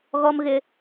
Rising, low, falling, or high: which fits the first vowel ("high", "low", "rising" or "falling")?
high